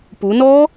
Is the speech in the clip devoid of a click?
yes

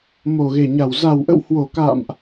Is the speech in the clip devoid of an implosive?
yes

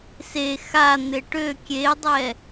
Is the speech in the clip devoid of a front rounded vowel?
no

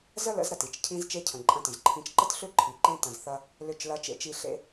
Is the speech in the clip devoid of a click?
no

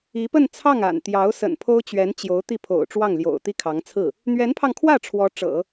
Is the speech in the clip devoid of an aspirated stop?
no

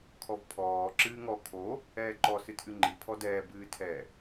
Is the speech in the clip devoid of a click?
no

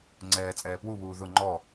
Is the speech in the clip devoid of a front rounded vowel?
yes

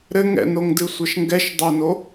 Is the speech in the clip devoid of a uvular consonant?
yes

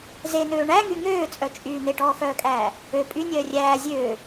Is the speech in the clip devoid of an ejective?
no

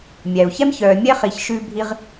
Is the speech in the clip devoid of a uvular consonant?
no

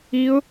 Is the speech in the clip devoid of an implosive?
yes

